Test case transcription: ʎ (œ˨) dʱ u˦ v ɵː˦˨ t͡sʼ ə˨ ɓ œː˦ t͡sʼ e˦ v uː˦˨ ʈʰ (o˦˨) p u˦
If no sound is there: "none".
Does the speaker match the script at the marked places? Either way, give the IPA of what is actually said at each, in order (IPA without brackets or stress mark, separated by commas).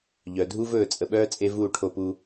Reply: œ˨, o˦˨